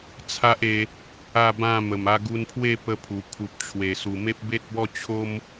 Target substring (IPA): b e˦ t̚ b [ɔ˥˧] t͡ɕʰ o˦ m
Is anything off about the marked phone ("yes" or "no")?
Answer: no